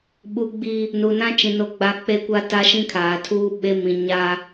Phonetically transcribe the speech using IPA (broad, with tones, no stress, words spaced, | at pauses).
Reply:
ɓu˦ɡ͡bi˦ | nu˨ nã˦t͡ʃĩ˨ no˦ɡ͡ba˦ k͡pe˦kʷa˦ta˦ ʃĩ˦kʰaː˨tʰuː˦ ɓe˦ mĩ˨ ɲa˦